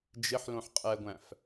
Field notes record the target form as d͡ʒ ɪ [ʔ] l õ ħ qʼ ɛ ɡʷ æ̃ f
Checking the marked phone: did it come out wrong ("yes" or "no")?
yes